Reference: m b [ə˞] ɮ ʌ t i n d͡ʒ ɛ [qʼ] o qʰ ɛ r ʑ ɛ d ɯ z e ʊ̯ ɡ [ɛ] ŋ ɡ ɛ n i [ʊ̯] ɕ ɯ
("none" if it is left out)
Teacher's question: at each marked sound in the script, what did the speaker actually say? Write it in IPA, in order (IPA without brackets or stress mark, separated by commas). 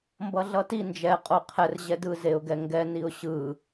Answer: ʌ, qʼ, ɛ, ʊ̯